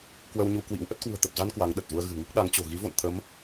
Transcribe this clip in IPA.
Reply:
k w ə˧ w ɲ u˧ k w ḭ˧˥ w ʔ ə˦˥ t̚ k w ṳ˨˩ ə̯ t̪ ə˨˩ p̚ z a˧ n k w a˨˦ ŋ ɗ ə˨˩ t̚ z u˧ ə̯ ɣ ɨ̤˨˩ ŋ i˦˥ k̚ ɗ a˨˦ ŋ t͡ɕ o̤˨˩ ɣ i˨˦ v o̰˧˨ n t̪ʰ ə˨˦ m

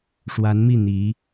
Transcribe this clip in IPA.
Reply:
ʂ w a˧˥ n m i˥˩ n̪ i˧˥

